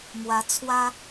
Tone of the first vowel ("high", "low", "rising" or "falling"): rising